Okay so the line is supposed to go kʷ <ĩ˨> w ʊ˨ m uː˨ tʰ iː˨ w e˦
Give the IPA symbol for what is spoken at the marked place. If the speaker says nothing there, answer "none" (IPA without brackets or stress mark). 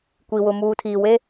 i˨